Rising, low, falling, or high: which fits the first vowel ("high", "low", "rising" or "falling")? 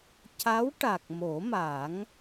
rising